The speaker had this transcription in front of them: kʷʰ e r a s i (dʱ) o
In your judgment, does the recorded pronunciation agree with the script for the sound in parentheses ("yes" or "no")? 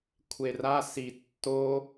no